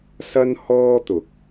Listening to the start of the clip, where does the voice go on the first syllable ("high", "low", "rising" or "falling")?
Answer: high